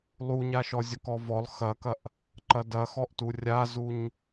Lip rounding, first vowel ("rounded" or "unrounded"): rounded